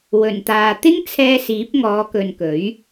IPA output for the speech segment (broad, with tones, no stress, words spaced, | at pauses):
wɵ˨˩nt̪aː˨ t̪ɪ˥ŋt͡sʰɛː˧ siː˨˥p̚ŋɔː˨˧kɵ˨nkɵ˨˥ɥ